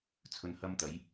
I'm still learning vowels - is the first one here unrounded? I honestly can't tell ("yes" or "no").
no